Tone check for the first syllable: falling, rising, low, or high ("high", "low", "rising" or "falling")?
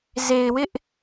low